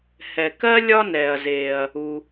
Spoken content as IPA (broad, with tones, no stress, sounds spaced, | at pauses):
h ɛ˩ k ɜ˥ lʲ ɒ˥ n ɛː˩ ɐ̯ z eː˩ ɐ̯ | u˩